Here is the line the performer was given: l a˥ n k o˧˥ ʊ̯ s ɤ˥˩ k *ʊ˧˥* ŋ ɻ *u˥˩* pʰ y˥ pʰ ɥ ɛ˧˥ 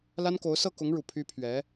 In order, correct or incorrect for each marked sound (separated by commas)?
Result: correct, incorrect